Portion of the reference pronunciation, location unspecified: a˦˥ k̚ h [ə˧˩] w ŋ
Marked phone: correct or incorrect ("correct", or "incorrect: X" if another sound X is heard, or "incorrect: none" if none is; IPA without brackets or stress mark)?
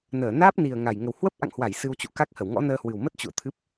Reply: correct